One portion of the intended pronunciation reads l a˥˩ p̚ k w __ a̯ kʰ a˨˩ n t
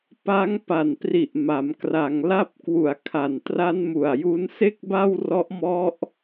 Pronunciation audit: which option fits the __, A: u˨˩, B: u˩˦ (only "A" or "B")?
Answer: A